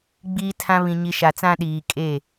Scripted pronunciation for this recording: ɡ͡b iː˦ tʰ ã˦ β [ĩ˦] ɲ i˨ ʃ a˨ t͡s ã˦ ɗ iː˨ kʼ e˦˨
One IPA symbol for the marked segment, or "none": ĩ˨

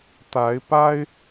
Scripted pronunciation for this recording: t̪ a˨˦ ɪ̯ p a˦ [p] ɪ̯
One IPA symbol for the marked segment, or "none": none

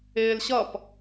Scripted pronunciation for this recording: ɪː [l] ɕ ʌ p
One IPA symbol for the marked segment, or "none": l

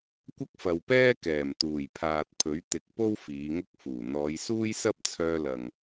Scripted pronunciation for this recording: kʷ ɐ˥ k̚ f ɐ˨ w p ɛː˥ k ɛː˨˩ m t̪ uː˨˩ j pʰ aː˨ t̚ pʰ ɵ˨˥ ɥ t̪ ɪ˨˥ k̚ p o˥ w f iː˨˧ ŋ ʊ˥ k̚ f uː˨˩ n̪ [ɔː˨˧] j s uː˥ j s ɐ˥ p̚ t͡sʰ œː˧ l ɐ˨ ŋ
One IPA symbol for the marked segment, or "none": ɔː˨˧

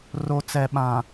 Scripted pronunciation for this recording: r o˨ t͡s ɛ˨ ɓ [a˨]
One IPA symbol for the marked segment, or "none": ã˨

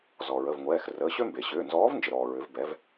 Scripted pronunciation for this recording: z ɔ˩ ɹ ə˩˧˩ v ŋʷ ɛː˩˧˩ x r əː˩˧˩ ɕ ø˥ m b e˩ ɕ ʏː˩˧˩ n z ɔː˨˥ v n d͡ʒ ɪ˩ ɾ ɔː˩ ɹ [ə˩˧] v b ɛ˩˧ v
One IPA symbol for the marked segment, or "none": ʏ˩˧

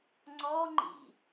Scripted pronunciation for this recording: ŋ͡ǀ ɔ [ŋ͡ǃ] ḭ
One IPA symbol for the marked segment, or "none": ŋ͡ǃ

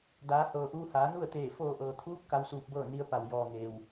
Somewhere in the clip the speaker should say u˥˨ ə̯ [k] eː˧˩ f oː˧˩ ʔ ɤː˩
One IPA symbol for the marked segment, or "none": t̪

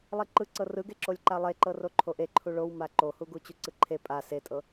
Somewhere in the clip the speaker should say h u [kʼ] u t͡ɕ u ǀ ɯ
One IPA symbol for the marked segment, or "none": ɡ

